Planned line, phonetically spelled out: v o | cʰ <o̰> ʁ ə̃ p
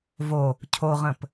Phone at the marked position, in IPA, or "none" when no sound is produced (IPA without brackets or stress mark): o